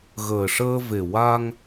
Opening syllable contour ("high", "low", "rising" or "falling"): low